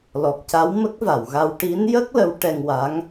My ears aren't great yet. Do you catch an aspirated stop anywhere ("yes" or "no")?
no